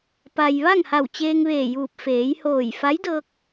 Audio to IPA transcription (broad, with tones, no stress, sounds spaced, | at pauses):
p a˩ j ʋ a˥˨ ŋ h a˧˩ w t͡ɕ eː˧ ŋ ʋ eː˧˩ j uː˧˩ p̚ f eː˩˧ j h oː˧˩ j f a˧˥ j d ɤː˧ k̚